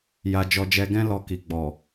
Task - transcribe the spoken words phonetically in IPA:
ja˧d͡ʒɔ˧d͡ʒɛ˧ɡɛ̃˦ lɔ˧ki˨ɡ͡bɔ˨

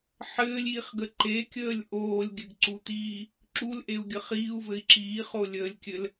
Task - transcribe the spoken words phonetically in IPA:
ħɘːlʲiːχɡə ǃekʲəːlʲ ʔoːlʲɡʲɘɡǀut̪iː | ǁulʔeu̯ɡʲə χiːu̯vɘi̯ ǁiːχolʲəːlʲkʲɘl

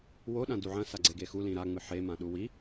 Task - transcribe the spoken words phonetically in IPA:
wo ɗãduʕɐ̃ saɡ͡ǀeɡexu lĩɾa ŋ͡mɨħe mãɗuwi

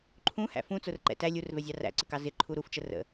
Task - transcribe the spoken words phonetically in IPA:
ǃʰũhæ̰ fũt͡sʊrǃɛ̰ tæ lʲurvɛzʲɑ ræ̰ǀɪkɑ zɪǃʰu ɾuft͡ʃə rə̰

